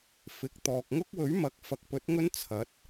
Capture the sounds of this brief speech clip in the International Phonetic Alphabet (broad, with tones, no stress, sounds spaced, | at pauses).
f ɪ˨˥ k̚ t̪ ɔː˨ k̚ ŋ ʊ˥ k̚ w ɵ˨˥ ɥ m ɐ˨˥ k̚ f ɐ˨˥ k̚ p ɵ˨˥ t̚ ŋ ɵ˥ n t͡sʰ ɐ˨˥ t̚